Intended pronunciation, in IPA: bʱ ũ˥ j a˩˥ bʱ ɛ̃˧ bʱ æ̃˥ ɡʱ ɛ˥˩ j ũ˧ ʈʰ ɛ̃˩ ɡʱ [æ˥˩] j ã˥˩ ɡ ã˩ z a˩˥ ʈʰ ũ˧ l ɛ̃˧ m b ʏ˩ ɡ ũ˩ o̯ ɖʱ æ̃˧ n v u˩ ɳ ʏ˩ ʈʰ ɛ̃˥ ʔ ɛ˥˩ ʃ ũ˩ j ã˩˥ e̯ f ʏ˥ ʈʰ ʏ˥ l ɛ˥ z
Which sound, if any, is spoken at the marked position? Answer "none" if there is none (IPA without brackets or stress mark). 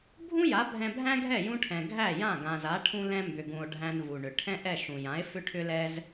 æ˥˩